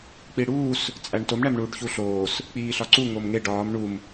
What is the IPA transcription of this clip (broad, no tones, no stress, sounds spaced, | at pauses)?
k͡p i ɽ uː s | t͡sʼ æ ɳ t o m ɳ æ m ɳ uː ɖ ç u ɬ oː s | k͡p iː ɬ ɒ ǀ u ŋ o m ŋ e ɖ ɒː m ɳ u m